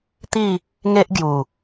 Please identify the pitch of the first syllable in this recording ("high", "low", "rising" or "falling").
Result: falling